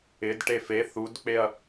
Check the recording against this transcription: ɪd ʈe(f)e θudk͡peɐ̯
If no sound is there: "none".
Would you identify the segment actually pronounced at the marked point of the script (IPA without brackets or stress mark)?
f